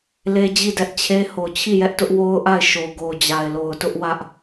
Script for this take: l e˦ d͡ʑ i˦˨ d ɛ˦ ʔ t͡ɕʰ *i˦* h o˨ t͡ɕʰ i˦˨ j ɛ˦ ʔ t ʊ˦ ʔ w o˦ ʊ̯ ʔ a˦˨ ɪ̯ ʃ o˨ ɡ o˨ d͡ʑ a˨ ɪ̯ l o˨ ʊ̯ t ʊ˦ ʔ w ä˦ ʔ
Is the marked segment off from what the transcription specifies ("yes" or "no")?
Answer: yes